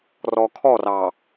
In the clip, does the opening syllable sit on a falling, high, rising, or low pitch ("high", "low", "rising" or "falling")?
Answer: low